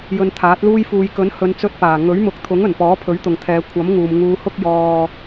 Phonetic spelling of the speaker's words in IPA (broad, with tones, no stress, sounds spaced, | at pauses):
j ɵ˧ n t̪ʰ aː˨˥ t̚ l uː˧ j f uː˨ j k ɵ˨˥ n h ɵ˨˧ n t͡s ɵ˧ t̚ p aː˨˩ ŋ ɵ˨˥ ɥ m ʊ˨ k̚ t̪ʰ ʊ˨˥ ŋ ɵ˨˩ n p ɔː˨˥ pʰ ɵ˨˥ ɥ t̪ ʊ˨ ŋ t̪ʰ ɛː˨˧ kʷʰ ɐ˨˥ m ŋ uː˨ m ŋ uː˧ h ʊ˥ k̚ j ɔː˧